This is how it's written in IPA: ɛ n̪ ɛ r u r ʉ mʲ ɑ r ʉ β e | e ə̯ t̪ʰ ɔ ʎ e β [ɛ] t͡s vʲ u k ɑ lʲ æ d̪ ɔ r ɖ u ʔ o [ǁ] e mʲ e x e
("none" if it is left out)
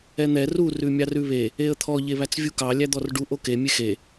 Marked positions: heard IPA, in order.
æ, k

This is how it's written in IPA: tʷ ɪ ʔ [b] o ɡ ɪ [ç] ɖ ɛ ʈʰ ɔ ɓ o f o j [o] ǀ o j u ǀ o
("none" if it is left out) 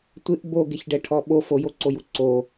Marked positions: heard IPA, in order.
b, ç, o

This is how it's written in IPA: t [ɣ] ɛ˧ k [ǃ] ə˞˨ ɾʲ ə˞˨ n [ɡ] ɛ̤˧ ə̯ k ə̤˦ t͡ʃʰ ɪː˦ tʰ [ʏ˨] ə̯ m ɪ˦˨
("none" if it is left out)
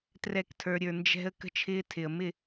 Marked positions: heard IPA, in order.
r, tʰ, d͡ʒ, ɪ˨

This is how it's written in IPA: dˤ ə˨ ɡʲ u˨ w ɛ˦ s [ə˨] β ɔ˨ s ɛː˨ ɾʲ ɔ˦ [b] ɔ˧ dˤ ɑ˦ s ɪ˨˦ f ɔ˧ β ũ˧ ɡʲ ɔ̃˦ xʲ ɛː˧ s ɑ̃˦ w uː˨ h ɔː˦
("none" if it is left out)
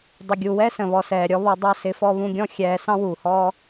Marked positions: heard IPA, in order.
ə̃˨, β

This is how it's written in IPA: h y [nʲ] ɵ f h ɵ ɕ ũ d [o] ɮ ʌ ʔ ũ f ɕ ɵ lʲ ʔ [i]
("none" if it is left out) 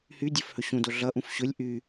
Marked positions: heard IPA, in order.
dʲ, o, y

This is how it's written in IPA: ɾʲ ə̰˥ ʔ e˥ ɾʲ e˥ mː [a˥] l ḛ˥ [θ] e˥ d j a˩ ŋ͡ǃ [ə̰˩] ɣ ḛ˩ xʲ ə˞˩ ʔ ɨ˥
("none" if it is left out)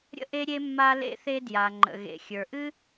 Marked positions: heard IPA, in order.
a˥, θ, ə̰˩

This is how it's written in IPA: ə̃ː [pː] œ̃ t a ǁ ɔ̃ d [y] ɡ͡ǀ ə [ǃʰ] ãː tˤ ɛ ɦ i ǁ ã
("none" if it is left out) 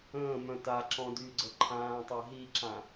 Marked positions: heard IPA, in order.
m, y, ǃʰ

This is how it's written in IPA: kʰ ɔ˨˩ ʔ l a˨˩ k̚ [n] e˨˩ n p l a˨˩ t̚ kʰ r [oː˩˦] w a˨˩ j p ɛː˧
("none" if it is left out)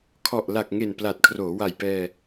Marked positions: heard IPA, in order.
ŋ, oː˩˦

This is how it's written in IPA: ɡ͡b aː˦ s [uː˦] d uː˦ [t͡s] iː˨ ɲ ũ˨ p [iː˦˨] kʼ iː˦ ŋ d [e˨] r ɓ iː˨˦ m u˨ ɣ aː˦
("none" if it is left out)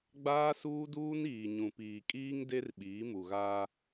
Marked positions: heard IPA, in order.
uː˦, n, iː˨, e˦

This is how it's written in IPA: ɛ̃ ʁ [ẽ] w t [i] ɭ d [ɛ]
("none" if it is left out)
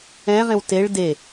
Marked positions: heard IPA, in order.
ẽ, e, e

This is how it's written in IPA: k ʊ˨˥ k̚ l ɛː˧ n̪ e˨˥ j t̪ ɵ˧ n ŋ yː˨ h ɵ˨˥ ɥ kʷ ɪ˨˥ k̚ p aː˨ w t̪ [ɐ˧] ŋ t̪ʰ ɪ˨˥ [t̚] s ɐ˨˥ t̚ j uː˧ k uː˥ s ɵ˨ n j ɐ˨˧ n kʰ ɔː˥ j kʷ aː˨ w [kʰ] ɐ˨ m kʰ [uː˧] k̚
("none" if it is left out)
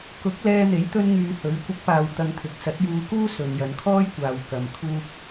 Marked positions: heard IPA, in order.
ɐ˧, k̚, k, uː˧

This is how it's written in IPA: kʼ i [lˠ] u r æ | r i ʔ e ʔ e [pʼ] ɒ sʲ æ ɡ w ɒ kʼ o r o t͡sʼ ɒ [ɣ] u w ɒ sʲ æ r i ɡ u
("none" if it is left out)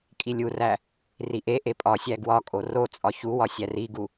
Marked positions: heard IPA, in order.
lʲ, pʼ, ç

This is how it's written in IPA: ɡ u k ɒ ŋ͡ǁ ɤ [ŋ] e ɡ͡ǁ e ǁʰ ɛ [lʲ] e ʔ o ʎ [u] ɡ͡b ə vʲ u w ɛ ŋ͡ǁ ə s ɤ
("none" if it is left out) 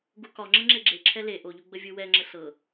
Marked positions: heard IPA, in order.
ŋ͡ǁ, l, u

